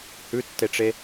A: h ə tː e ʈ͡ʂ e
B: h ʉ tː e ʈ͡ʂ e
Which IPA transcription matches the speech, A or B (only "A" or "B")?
B